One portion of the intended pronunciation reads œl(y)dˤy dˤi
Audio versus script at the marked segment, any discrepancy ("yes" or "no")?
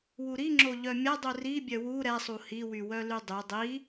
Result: no